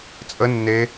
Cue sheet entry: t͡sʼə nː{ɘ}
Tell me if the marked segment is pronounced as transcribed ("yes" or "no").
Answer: no